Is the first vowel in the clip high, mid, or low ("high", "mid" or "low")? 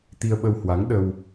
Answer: high